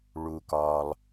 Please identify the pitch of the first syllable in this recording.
low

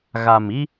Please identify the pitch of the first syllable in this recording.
low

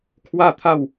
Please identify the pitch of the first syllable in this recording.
falling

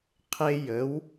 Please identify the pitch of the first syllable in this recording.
high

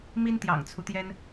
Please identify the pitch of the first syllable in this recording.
high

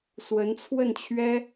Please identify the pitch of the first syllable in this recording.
rising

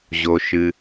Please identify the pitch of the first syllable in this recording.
low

